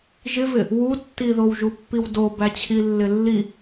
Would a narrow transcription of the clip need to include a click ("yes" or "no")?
no